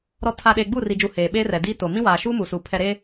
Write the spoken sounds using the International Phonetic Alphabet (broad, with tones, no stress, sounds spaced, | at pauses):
ɾ ɔ˨ tʰ a˨ ɗ eː˨ ɡ͡b uː˦˨ r i˨ d͡ʒ u˨ h eː˨ ɓ eː˦ r ɛ˨ d iː˦ t o˨ m ĩ˦ w aː˨ ʃ uː˦ m u˨ s u˨ pʰ ɛ˨ ɾ eː˦